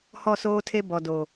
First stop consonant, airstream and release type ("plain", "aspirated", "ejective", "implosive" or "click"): aspirated